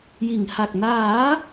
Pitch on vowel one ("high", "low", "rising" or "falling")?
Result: low